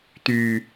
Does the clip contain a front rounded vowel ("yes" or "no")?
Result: yes